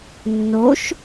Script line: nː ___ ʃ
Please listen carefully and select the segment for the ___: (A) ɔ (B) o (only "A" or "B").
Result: B